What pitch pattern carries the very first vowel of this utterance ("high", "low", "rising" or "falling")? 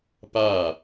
falling